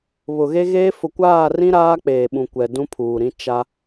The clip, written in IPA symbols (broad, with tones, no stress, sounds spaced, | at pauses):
β ʊ˨ ɣ e˦ ɣ eː˦ f ʊ˨ kʷ aː˦˨ r ĩ˦ ɾ aː˦ k͡p eː˨ ɓ ũ˨ kʷ ɛ˨ d ũ˦ pʰ uː˨ ɾ ĩ˦ t͡ʃ a˦